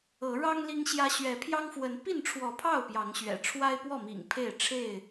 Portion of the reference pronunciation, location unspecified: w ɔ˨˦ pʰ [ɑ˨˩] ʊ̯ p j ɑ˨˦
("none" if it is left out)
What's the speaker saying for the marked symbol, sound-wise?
ɑ˥˨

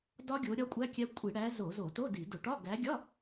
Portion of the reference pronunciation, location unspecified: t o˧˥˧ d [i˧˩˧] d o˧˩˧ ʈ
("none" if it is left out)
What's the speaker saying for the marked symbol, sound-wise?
i˧˩˧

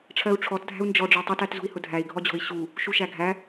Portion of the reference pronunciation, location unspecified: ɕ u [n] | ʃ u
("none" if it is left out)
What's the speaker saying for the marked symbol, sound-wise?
none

